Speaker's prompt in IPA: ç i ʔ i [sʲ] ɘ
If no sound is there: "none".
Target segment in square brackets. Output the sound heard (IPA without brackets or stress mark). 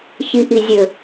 zʲ